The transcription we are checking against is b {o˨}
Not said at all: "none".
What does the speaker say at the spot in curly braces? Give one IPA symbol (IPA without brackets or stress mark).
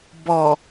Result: ɔ˨